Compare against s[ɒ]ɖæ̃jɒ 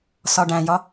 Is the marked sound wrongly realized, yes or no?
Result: no